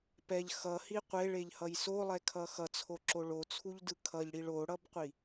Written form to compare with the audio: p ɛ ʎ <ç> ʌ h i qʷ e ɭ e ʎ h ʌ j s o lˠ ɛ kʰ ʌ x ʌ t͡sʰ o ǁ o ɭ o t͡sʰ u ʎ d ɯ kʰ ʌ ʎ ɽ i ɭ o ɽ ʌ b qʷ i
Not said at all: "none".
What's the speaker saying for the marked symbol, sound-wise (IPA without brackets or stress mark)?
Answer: x